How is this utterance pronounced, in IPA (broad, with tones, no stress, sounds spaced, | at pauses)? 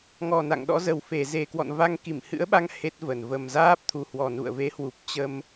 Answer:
ŋ ɔ˨˩ n a̰˧˨ ŋ ɗ ɔ̰˧˥ z ə˨˩ w f e˨˩ z e˨˩ k w ɔ̰˧˨ n v a˧ ŋ k i˧˩ m h ɨ̰˧˥ ə̯ ɓ a˧ ŋ h e˦˥ t̚ v ə˨˩ n v ə˨˩ m z aː˦˥ p̚ t̪ʰ u˨˩ h w ɔ˨˩ n ṵ˧˨ ə̯ v e˨˦ h w u˨˩ p̚ t͡ɕ ə˧ m